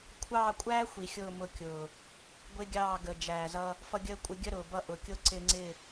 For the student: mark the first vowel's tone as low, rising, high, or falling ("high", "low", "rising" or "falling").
falling